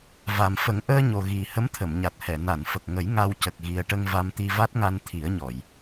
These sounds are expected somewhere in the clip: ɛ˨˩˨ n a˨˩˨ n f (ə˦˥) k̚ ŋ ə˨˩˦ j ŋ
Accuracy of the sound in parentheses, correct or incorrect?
incorrect: ə˨˩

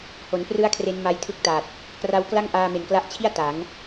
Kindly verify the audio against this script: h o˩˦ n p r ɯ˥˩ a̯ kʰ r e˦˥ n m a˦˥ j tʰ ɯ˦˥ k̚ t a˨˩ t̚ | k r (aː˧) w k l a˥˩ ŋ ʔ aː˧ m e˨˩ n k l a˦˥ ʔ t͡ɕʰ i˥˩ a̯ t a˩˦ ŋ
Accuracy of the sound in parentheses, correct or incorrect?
incorrect: a˧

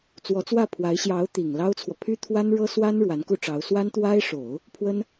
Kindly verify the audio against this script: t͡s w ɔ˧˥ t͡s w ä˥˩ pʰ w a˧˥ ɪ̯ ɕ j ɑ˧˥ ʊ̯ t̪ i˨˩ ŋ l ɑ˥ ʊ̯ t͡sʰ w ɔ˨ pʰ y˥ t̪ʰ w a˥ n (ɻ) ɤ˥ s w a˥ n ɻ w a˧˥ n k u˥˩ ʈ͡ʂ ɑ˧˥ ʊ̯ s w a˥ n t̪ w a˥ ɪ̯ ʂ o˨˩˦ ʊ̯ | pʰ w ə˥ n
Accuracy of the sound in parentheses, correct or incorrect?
correct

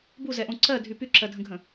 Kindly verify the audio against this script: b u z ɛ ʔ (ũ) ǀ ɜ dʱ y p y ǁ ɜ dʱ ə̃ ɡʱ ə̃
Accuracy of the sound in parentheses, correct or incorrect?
incorrect: õ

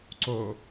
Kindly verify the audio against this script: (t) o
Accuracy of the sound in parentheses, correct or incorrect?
incorrect: ǀ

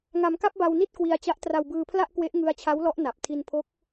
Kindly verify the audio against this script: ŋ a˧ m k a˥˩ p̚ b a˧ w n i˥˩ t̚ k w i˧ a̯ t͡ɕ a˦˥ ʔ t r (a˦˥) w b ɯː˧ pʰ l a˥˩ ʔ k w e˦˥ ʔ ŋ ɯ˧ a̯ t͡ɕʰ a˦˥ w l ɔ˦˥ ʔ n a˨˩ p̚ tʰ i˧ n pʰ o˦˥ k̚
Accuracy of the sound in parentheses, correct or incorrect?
incorrect: a˧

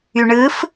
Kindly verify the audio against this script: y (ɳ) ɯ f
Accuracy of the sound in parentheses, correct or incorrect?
correct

